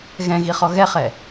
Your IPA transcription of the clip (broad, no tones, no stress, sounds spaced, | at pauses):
ɣ ɛ̃ ɣ i χ ɔ ɣ ɛ χ ɛ